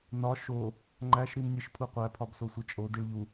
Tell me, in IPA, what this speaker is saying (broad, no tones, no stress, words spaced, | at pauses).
nɒ ʃo | ŋ͡ǃæʃ ɾimnʲeʃpʰuqʷæ pʰɒbsosʷet͡ʃʼo diɭʎu